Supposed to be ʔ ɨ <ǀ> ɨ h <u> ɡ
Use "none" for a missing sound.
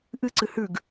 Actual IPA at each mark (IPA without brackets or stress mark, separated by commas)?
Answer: ǀ, ʉ